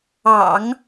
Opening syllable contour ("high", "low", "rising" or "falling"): low